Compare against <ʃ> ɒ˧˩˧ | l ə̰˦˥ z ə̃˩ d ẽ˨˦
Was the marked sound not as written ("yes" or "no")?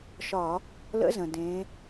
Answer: no